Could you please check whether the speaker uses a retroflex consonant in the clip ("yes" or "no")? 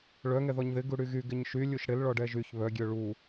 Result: yes